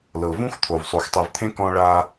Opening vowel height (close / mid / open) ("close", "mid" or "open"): mid